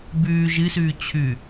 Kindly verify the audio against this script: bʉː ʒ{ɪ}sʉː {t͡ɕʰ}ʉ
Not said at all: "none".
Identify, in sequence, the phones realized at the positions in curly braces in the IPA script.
ɨ, t͡ɕʰ

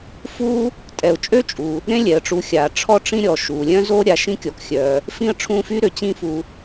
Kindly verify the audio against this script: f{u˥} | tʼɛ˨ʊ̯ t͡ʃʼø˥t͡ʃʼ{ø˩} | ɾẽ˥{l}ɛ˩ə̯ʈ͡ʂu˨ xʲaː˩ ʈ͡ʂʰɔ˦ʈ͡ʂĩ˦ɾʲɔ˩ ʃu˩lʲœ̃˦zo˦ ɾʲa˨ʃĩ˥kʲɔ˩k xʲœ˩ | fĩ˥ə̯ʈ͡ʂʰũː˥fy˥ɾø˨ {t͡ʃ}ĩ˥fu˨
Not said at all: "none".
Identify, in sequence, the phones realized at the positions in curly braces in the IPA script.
u˥, u˩, lʲ, t͡ɕ

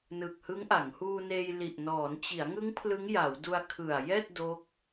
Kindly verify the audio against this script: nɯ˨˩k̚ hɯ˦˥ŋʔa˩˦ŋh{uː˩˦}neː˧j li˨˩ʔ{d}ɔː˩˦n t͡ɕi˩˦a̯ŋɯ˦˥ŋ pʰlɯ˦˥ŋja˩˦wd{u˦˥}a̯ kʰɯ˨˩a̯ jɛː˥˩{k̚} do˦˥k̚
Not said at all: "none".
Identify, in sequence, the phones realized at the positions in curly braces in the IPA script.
uː˧, n, u˧, t̚

